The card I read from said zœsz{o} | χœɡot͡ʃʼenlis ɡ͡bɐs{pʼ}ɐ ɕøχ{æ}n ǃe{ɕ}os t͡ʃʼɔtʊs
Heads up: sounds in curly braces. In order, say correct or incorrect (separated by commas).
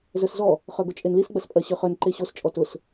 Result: incorrect, correct, incorrect, correct